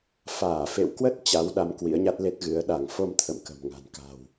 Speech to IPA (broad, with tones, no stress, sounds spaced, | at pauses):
f aː˧˩ f ḛ˧˨ w k w ə˦˥ t̚ t͡ɕ a˨˦ w ɗ a˨˦ m k w ḭ˧˥ ə̯ ɲ a˦˥ t̚ l e˦˥ t̚ ɣ ɨ˨˦ ə̯ ɗ a˧˩ ŋ f o˧ m t̪ʰ ə̰˧˨ m k ə̤˨˩ m ŋ a̤˨˩ n k a̤˨˩ w